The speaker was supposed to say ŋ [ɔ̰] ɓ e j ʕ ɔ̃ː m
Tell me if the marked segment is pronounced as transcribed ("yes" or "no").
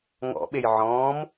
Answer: yes